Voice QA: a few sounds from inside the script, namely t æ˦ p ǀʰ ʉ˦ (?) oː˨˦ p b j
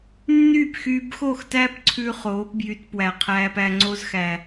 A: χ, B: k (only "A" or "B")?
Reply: A